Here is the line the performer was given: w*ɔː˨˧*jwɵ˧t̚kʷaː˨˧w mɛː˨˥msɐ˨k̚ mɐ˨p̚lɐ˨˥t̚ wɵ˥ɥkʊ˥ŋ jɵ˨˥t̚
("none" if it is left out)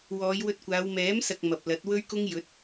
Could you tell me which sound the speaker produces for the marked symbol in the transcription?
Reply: ɔː˨˧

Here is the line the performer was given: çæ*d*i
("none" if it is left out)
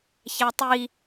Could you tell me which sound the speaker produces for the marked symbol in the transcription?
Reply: tˤ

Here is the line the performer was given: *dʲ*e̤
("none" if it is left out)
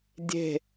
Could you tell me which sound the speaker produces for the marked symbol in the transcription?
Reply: dʲ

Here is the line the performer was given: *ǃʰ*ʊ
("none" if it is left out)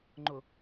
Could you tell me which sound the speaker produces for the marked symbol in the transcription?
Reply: ŋ͡ǃ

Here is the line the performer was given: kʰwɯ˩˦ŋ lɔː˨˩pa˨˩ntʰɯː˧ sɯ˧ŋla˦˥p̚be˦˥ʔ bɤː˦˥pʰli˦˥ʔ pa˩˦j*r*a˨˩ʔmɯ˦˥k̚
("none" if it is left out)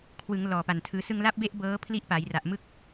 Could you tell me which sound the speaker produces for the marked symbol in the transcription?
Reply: r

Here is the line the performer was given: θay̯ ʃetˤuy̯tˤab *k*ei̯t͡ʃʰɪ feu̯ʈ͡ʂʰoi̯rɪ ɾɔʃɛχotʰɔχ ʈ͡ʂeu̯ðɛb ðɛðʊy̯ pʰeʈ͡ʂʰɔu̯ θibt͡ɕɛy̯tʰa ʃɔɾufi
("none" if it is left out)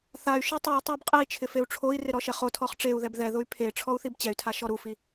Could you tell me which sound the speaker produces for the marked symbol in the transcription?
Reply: qʼ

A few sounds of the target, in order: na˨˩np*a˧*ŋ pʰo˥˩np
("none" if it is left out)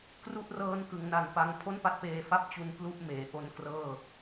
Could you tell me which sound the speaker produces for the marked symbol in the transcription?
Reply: a˧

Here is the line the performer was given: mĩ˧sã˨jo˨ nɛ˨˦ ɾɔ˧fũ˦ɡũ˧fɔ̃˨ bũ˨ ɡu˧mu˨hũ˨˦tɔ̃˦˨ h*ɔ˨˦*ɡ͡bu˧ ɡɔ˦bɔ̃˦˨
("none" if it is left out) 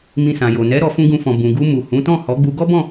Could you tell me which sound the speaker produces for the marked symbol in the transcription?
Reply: ɔ˨˦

